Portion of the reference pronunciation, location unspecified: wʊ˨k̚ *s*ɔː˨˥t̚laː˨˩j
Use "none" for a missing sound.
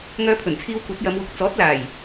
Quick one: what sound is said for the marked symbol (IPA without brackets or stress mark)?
t͡s